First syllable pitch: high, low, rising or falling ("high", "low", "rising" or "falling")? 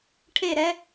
falling